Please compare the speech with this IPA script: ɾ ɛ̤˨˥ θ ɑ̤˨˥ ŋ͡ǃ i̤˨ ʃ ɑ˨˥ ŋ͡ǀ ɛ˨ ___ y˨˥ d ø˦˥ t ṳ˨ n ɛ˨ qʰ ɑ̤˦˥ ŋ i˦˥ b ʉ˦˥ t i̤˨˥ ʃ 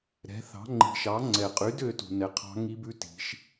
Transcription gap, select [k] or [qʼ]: qʼ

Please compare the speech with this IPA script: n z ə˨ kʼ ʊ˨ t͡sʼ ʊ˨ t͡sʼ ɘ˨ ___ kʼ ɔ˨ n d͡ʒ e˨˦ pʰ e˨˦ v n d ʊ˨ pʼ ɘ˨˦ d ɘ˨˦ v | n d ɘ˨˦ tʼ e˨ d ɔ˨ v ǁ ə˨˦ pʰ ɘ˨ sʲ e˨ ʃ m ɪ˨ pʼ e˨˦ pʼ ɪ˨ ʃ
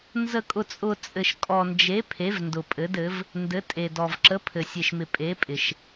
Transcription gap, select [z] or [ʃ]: ʃ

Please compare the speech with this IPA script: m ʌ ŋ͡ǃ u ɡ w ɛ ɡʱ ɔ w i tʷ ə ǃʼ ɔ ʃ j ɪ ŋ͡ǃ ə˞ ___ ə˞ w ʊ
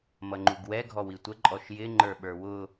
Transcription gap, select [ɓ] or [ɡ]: ɓ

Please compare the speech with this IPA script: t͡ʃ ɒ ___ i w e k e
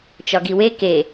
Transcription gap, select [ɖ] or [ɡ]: ɡ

